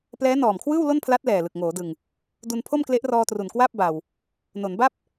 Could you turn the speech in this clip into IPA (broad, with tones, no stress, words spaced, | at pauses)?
plɛː˦˥nɔː˨˩mkʰwɯː˥˩w lo˥˩npʰla˦˥t̚ lɛː˨˩lɯ˨˩k̚ŋoː˩˦dɯ˨˩ŋ | du˧npʰo˥˩mkle˦˥ʔrɔː˧ tru˨˩nkwaː˥˩p̚ba˨˩w | no˩˦nba˥˩p̚